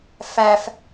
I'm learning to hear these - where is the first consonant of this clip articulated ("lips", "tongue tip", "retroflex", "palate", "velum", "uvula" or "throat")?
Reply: lips